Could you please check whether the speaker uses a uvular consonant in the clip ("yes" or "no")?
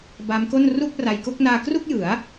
no